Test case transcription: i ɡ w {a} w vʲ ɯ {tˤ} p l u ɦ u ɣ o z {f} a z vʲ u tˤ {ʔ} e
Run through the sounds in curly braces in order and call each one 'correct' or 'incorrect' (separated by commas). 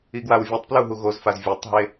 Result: correct, correct, correct, incorrect